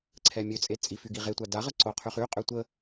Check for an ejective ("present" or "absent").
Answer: present